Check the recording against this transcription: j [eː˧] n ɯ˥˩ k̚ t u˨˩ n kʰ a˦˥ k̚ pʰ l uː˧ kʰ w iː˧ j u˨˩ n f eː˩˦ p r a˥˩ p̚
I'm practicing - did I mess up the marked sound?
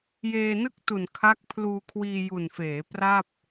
no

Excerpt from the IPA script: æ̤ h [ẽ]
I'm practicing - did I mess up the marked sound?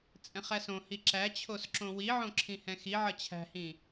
yes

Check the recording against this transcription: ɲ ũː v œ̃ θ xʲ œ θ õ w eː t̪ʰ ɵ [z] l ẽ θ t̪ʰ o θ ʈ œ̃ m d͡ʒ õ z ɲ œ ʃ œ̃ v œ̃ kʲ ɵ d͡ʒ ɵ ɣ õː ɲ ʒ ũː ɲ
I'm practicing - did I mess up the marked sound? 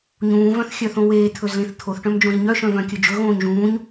no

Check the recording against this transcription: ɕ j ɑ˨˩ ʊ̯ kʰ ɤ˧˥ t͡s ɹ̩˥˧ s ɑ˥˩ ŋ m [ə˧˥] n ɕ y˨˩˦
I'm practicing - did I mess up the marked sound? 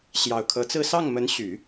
no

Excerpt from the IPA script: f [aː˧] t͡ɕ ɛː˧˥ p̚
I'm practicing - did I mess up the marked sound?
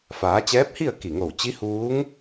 yes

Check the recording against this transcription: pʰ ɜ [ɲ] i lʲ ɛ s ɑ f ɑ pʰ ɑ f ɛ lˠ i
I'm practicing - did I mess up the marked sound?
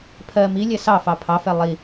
yes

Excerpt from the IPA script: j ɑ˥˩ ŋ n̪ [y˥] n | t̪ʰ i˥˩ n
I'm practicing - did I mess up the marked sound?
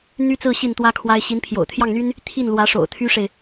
no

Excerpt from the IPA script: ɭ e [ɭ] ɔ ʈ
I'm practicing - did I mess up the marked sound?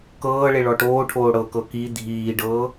no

